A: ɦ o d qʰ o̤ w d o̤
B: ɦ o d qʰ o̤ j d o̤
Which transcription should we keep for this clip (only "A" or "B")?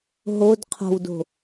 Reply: A